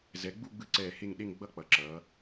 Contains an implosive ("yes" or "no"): yes